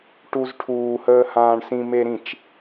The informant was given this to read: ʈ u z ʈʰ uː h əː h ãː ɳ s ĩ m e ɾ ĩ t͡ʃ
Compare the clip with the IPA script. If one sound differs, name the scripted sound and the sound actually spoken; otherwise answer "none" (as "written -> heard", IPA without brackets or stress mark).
none